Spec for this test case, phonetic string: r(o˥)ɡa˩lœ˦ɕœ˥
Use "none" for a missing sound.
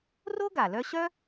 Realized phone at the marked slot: o˥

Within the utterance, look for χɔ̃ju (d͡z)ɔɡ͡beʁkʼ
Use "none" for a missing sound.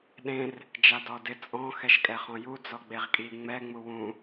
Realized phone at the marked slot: d͡z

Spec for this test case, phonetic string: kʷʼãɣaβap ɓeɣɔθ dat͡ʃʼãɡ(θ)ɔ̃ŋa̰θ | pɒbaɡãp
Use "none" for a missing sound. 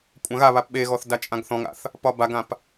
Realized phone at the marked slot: θ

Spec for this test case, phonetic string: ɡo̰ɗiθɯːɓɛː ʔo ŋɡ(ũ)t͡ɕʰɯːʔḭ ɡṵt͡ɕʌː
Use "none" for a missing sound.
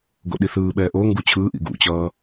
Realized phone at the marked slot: u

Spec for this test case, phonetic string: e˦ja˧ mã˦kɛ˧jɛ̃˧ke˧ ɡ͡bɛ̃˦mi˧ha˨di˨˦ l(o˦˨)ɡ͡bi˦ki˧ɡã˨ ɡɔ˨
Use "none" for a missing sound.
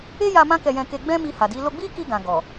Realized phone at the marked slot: o˧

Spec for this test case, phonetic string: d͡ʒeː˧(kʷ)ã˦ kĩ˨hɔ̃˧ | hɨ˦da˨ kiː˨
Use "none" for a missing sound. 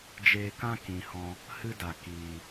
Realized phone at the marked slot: k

